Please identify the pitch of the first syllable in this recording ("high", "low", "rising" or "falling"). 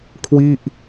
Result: falling